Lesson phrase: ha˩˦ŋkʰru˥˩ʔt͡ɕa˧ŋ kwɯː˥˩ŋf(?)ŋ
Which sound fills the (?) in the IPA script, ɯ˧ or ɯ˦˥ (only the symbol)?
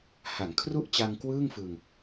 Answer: ɯ˧